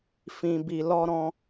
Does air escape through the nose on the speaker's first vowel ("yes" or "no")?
yes